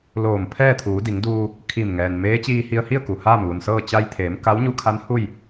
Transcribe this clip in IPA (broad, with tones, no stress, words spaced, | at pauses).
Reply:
loː˧˩m pʰɛː˥˨t̪ʰuː˩˧di˩˧ŋduː˧ | kʰi˧˩mŋɛː˩nmeː˧˥ t͡ɕiː˧hi˧ə̯ hi˥˨ə̯ku˩ haː˥˨mʋu˩nsɤː˥˨ t͡ɕa˧jt̪ʰeː˩˧m ka˧˥wɲu˧˥kʰa˧˥n hu˥˨j